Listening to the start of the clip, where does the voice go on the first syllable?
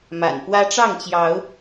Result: low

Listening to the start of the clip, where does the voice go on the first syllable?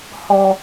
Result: high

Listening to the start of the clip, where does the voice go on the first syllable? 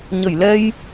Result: low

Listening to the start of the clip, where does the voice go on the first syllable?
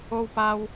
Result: high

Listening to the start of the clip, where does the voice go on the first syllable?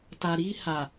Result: low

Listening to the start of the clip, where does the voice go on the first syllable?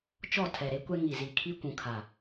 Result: falling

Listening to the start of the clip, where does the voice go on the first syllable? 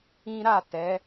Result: high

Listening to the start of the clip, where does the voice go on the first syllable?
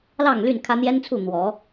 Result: falling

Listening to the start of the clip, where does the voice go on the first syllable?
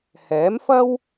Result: rising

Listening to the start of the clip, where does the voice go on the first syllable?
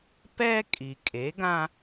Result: high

